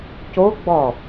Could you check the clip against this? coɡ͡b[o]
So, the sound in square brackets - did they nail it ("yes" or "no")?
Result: no